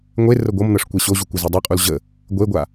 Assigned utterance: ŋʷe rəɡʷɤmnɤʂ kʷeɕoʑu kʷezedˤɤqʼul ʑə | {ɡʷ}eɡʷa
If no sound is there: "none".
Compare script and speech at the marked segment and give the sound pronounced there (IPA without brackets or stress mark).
ɡʷ